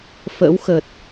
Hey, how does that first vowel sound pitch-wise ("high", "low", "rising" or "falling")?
rising